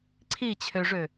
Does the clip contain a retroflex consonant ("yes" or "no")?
yes